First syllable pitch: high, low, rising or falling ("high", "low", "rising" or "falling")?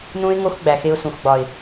high